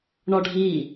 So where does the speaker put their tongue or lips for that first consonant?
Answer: retroflex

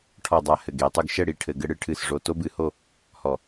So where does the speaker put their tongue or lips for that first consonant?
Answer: retroflex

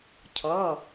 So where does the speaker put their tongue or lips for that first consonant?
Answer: palate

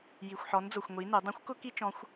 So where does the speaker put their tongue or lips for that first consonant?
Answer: palate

